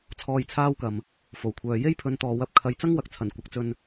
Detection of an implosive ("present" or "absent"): absent